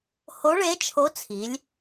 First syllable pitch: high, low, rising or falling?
rising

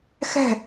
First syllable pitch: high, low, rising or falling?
falling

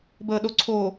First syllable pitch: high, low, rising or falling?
low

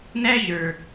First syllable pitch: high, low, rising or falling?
high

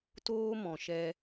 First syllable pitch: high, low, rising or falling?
high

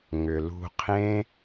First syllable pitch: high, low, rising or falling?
low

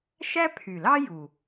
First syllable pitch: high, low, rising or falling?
high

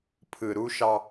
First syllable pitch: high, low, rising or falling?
low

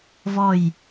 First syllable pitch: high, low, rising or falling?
falling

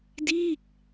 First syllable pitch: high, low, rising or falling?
falling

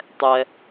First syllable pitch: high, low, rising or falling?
low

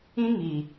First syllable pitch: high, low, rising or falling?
high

